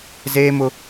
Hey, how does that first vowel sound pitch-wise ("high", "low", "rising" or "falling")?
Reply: high